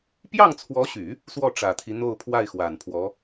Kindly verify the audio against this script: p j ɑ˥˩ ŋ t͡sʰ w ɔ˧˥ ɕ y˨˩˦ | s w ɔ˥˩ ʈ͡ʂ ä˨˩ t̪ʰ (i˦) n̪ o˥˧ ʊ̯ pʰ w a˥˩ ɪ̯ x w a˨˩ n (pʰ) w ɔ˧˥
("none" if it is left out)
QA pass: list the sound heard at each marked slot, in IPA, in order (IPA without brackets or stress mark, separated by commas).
i˦, pʰ